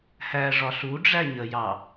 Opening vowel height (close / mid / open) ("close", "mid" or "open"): open